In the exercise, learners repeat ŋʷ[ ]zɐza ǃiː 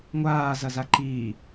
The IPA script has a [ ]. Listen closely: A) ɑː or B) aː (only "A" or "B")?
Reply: B